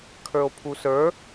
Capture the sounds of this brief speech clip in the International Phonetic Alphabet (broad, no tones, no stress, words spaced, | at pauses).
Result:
kʰə˞o̯pʰusə˞